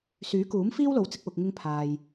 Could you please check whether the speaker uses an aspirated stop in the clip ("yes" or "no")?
yes